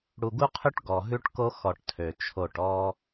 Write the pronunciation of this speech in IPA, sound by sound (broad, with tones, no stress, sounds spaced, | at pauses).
ɽ u˨ ɡ u˦ qʰ ʉ˦ ʈ ɡ ɔ˨ ɦ ʉ˦ ʈ k o˦ x ɔ˨ ʈ tʰ ø˨ t͡ʃʰ o˦˨ ʈ ɔ˦